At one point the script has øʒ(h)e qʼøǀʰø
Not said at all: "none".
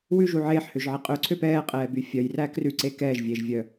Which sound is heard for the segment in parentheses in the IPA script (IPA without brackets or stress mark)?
ʕ